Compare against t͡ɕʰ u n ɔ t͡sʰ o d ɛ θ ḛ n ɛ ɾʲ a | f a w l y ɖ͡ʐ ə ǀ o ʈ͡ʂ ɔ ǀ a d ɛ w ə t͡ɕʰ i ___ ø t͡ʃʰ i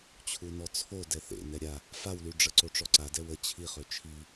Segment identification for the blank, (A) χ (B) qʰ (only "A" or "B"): A